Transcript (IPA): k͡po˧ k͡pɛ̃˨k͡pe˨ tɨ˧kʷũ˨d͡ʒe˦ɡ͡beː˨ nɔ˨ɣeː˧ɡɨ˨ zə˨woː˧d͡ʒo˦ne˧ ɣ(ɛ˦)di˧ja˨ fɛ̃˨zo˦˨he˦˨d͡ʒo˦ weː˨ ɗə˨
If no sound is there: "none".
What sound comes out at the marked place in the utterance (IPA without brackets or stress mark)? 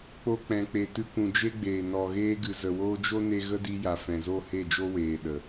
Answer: ə˦